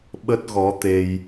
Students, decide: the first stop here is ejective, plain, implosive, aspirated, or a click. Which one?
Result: implosive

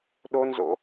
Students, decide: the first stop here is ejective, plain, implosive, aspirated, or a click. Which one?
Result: implosive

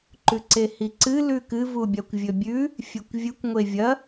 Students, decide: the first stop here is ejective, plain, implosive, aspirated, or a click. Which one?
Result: click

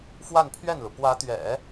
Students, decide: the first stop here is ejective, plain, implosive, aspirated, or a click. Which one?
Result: aspirated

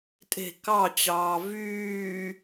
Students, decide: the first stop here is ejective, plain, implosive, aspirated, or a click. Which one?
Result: ejective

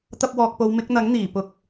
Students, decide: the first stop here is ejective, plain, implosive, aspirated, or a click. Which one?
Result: plain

